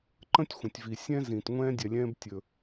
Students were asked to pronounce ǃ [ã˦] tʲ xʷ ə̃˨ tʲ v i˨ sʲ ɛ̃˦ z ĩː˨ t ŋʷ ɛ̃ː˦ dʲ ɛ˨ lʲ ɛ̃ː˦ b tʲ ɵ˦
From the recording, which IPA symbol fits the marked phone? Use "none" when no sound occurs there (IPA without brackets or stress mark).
ə̃˦